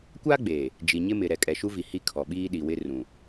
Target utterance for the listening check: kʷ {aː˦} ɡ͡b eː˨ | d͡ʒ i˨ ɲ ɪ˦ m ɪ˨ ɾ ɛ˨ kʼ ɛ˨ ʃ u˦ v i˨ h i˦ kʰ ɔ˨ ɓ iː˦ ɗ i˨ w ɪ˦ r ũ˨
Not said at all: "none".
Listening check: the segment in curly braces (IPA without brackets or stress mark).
aː˦